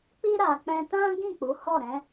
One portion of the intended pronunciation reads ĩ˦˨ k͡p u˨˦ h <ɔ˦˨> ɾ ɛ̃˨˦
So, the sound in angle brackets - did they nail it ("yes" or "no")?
yes